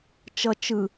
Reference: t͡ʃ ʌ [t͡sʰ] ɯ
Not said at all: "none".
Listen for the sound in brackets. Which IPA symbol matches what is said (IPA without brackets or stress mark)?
t͡ʃ